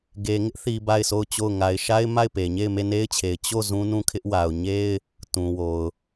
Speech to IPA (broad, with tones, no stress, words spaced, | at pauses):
ɡe˨ŋɪ˦ʔθi˨ ba˦˨ɪ̯sʰo˦˨ʊ̯t͡ɕo˦˨ʊ̯ ŋa˨ɪ̯ʃa˦ɪ̯ ma˦˨ɪ̯pe˨ ɲe˦˨ɪ̯me˦˨ne˦ɪ̯t͡ɕʰe˨ɪ̯ t͡ɕo˦˨ zũ˦nũ˦˨kʰɪ˦ʔ wa˨ʊ̯ɲe˦ɪ̯ | tũ˨wo˨ʊ̯